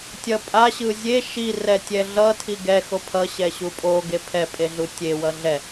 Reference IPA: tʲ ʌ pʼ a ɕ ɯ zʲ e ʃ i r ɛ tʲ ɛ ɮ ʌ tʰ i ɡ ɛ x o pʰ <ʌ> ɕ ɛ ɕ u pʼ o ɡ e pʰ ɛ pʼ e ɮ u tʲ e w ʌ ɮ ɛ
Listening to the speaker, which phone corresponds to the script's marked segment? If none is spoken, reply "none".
ʌ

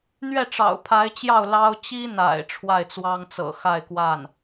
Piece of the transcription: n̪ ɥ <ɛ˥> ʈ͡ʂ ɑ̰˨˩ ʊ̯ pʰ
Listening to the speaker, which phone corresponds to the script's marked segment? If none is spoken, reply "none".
ɛ˥˩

